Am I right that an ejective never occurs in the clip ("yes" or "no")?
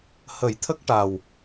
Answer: yes